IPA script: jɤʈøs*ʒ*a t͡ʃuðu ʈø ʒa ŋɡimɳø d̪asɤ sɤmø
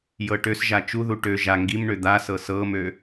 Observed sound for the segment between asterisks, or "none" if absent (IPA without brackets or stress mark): ʒ